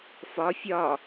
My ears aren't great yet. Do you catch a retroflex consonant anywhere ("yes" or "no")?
no